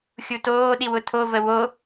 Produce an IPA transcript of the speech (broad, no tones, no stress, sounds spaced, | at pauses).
xʲ u t oː ɗ i w ʊ tʰ o v ə w o